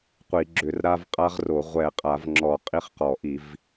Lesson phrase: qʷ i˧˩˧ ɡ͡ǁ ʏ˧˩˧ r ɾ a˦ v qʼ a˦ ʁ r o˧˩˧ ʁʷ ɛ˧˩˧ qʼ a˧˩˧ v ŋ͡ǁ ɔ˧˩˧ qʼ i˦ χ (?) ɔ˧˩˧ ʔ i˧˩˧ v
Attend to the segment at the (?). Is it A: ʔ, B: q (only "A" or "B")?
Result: B